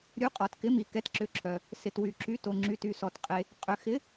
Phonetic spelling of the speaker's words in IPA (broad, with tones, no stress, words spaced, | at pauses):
ɾʲu˨˥ qʼɔ˨tkɪ˨˥mi˨ kɛ˨˥tǁʏ˨˥ǁʰœ˨ | sɪ˨twy˨ǁy˨˥ to˨ŋ͡ǁy˨ty˨ sɔ˨tqʼe˨ | qʼʏ˨xɪ˨˥